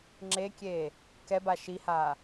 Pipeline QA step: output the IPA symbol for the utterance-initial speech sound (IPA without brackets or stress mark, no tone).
ŋ͡ǁ